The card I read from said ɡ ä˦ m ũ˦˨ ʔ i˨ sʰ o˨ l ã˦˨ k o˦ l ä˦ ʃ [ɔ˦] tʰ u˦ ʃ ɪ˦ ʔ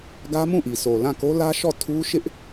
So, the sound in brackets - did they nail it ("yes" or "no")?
no